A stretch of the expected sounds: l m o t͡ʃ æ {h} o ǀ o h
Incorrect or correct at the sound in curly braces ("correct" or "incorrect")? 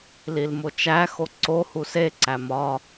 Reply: incorrect